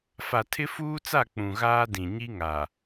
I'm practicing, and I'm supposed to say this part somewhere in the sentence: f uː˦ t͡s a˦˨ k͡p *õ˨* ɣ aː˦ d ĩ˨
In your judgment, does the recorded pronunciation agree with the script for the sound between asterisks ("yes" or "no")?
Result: no